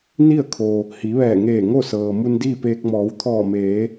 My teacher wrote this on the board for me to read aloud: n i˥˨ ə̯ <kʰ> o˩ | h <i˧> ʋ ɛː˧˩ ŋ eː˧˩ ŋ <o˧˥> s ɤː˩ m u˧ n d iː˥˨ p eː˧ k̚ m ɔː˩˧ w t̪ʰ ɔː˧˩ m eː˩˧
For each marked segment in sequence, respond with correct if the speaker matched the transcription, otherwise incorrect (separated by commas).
correct, incorrect, incorrect